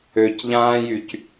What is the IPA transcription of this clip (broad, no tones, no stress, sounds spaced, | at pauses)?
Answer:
ø c ʎ ãː j y c